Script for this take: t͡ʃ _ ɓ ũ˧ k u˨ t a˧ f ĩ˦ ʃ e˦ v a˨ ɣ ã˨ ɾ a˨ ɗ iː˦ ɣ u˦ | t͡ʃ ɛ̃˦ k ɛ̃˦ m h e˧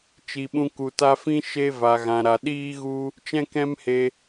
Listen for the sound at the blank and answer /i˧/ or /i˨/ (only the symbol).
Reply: i˨